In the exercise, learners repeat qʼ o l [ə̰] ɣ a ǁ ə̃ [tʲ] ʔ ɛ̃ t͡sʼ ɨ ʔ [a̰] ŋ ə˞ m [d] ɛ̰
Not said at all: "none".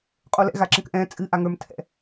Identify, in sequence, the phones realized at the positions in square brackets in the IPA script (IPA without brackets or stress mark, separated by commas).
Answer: ɛ̰, k, a, tʰ